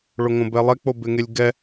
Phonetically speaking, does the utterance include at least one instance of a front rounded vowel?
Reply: no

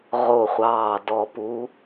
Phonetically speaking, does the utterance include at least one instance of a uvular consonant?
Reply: yes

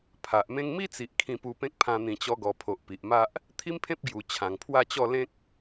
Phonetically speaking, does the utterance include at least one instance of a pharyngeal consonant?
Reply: no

